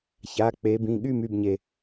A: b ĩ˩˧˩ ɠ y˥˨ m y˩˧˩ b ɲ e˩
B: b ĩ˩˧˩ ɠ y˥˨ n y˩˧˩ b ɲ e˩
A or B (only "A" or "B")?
A